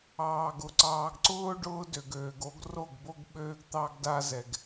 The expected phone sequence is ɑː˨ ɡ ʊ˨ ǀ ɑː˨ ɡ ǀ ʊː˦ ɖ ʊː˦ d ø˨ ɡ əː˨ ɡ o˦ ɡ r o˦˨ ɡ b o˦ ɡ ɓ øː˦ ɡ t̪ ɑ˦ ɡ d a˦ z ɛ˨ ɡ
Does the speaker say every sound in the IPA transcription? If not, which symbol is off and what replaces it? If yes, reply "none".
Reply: əː˨ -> øː˨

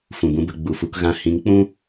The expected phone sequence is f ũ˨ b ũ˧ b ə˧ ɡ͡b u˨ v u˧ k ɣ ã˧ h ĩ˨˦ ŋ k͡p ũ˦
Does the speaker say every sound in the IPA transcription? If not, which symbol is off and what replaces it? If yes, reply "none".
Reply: v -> f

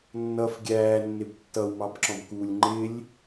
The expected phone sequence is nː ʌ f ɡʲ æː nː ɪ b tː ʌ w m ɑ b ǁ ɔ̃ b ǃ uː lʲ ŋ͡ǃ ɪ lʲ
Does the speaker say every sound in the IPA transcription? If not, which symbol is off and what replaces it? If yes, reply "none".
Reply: ǃ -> k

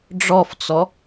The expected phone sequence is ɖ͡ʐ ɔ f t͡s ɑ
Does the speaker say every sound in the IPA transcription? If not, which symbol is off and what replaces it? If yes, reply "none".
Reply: ɑ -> ɔ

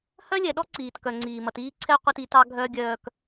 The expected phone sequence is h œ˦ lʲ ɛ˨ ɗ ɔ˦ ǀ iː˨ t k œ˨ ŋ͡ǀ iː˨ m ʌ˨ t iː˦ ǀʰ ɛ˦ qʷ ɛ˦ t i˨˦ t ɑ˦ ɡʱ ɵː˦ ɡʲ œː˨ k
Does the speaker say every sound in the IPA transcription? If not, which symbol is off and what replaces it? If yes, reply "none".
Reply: ɵː˦ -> œː˦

